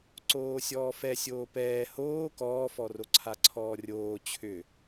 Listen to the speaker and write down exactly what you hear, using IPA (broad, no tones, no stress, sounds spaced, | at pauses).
ǀ oː sʲ ɔː f ɛ sʲ oː p ɛː h oː k ɔː f ɔ r o ǀʰ a ǀʰ ɔː rʲ oː t͡ɕʰ ʏ